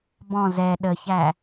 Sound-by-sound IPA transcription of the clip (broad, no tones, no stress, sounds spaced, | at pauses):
b ɔ̃ z ɛ ɗ ə ç æ